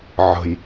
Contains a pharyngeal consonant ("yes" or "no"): yes